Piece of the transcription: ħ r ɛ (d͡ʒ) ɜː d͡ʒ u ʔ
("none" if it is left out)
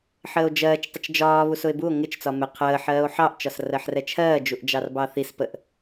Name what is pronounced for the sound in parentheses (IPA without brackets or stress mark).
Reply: t͡ʃʰ